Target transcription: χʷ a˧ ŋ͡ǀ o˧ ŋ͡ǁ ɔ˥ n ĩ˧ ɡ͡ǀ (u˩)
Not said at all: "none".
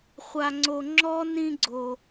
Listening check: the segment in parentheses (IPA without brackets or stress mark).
o˩